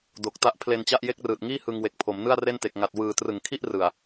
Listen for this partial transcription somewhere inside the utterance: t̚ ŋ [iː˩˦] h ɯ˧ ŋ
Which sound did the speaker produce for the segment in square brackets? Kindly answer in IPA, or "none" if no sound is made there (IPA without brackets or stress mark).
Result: iː˥˩